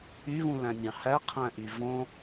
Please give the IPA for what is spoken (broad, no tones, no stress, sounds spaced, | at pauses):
y β ũ l æ̃ nʲ ɑ̃ h æ qʰ æ̃ ʔ y v õ